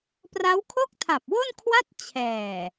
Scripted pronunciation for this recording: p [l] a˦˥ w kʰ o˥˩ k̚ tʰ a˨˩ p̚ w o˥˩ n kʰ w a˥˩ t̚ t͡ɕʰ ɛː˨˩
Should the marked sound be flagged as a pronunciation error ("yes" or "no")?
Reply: yes